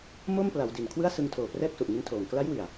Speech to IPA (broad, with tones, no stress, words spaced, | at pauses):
mo˥˩mpla˩˦w di˨˩n kʰwɯ˥˩a̯sɯ˧ŋtʰoː˨˩ prɛː˥˩k̚su˨˩ʔŋi˦˥ntʰoː˨˩ŋ kla˦˥jwi˨˩a̯